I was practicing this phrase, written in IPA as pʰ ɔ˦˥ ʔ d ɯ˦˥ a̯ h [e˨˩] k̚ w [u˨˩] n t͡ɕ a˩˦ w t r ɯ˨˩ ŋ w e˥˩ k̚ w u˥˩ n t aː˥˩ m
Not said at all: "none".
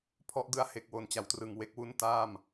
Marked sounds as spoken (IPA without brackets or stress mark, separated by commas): e˨˩, o˨˩